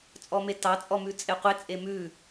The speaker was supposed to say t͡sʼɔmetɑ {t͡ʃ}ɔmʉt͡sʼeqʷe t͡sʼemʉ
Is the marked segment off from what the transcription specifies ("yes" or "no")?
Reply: yes